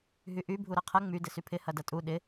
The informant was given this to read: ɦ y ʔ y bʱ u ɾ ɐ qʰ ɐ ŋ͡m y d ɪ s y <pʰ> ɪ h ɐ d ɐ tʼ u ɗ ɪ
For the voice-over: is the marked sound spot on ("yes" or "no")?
yes